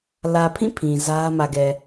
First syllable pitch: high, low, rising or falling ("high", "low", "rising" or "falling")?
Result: low